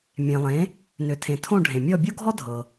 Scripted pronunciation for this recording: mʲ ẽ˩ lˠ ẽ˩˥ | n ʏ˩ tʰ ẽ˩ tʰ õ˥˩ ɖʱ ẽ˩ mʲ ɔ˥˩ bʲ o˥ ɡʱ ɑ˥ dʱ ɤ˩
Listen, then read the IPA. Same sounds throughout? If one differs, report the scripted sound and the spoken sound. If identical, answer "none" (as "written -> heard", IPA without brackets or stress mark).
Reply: ɑ˥ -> ɔ˥